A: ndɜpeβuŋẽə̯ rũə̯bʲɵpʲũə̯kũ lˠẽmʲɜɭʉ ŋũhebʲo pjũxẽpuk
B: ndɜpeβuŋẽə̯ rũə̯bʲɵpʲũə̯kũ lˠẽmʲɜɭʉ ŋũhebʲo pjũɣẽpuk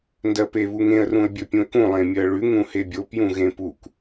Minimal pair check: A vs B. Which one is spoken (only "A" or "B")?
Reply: B